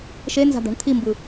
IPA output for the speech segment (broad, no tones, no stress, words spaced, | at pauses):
ʃenza̤d̪a̤ɳ t̪ʰimbɯ